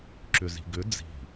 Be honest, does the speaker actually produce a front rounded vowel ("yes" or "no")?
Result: yes